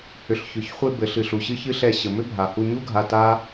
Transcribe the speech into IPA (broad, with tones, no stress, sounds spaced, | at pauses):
h ʏ˨ ɬ ç ʏ˨ ç χʷ e˧ b ɘ˨ ɬ ɨ˨ ɬ u˨ ɕ ɨ˦ ç ɨ˦ ɬ ɛ˧ ɕ ɘ˨ m ʏ˦ bʱ a˨ h u˧ ɲ u˦ ɡʱ a˧ t a˦